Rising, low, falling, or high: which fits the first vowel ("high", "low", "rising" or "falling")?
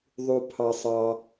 low